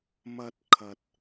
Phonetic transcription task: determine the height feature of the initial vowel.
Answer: low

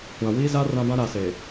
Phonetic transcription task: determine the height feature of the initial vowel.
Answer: low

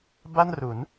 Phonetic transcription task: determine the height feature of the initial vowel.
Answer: low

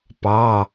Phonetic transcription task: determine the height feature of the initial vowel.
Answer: low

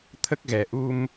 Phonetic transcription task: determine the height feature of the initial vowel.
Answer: mid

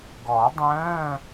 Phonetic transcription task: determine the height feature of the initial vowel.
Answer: mid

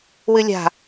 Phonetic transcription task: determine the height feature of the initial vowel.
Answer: high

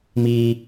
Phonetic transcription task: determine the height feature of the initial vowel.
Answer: high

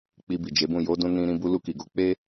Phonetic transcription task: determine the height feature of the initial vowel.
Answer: high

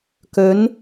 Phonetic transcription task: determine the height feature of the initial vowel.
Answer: mid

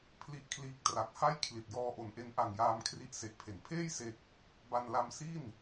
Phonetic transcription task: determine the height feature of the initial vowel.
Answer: high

